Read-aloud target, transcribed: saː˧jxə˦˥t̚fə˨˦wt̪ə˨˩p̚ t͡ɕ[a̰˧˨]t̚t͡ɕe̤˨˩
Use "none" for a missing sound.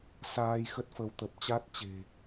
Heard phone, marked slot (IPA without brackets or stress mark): a˦˥